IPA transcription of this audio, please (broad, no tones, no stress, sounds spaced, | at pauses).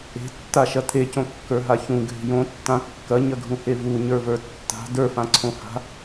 e̤ tː a ʃ ɐ t̪ʰ e c õ kː ə˞ ɦ a ç ũ ɡʱ e̤ j õ tː ã kː ɐ ɲ ɐ ɡʱ ũ h e v u ɲ ə˞ v ə˞ tː a̤ d ə˞ f ã ǀʰ õ h a̤